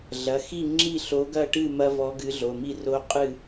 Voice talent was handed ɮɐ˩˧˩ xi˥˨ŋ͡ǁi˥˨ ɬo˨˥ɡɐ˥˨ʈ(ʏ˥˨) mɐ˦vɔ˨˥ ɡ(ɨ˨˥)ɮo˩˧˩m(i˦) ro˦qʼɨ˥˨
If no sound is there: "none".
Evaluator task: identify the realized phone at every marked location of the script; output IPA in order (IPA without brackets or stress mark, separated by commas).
ɨ˥˨, ɨ˨˥, i˥˨